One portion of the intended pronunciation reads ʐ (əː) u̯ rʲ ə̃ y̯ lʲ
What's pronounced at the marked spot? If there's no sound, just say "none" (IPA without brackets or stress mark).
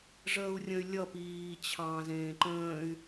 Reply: əː